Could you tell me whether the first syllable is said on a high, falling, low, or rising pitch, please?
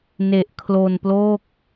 low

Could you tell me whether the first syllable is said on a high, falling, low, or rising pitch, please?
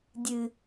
low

